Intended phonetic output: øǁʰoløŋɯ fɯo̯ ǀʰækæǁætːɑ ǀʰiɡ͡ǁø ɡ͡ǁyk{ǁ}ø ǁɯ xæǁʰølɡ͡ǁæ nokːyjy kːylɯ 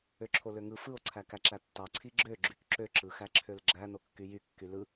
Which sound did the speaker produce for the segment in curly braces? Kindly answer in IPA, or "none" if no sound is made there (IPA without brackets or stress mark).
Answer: ǁ